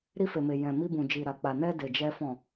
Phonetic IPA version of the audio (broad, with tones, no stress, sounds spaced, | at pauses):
ɾ i˧ f e˨ m e˨ j ɛ̃˨ m i˧ b ũ˨ d͡ʒ i˨ ɾ a˨ k͡p a˨ n ɛ˧ d e˨ d͡ʒ ɛ˧ f ɔ̃˨